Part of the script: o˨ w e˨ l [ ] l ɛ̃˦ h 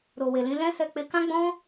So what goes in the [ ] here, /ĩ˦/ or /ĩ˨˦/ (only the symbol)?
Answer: ĩ˨˦